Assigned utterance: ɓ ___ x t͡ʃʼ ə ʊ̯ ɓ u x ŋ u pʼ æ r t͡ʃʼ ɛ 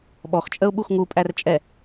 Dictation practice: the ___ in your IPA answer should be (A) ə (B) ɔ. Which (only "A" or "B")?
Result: B